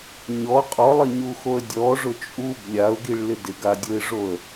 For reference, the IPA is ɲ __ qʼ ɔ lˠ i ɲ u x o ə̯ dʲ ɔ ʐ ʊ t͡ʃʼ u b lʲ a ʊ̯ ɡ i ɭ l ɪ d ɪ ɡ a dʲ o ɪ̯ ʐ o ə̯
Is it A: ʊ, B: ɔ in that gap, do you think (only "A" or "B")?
B